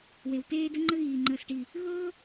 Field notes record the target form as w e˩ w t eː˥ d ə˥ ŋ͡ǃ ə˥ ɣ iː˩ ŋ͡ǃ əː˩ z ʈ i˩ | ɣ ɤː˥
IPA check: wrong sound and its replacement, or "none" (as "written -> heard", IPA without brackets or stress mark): z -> s